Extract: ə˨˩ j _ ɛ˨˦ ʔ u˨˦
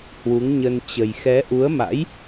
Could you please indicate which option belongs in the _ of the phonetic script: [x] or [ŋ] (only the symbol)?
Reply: x